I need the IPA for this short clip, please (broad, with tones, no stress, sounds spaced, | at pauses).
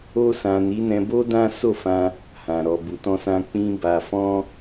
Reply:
o˧ s ã˨ n i˨˦ n ɛ̃˧ b o˦ d ã˦ s o˦˨ f ã˧ | h ã˨ ɾ ɔ˨ b u˨ t ɔ̃˧ s ã˧ k͡p ĩ˧ b a˨ f ɔ̃˧